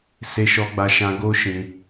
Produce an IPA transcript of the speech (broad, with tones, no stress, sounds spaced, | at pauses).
s e˧ ʃ ɔ˧ ɡ͡b a˧ ʃ ã˧ ɡ o˦ ʃ ĩ˧